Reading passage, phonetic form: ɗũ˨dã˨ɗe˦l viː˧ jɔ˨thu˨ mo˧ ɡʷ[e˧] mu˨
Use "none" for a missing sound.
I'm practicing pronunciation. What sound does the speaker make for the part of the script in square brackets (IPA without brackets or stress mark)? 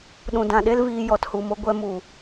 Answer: ɛ˧